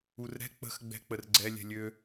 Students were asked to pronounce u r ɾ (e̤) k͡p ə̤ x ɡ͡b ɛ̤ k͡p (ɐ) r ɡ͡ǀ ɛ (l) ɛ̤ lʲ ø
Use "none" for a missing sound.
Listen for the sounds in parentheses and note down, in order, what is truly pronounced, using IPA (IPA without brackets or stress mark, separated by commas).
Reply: ɛ̤, ə, lʲ